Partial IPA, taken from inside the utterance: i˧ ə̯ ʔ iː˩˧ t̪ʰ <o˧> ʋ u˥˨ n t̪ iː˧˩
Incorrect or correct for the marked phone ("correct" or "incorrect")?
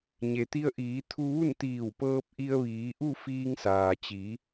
incorrect